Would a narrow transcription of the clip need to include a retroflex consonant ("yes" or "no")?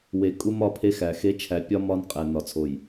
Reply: no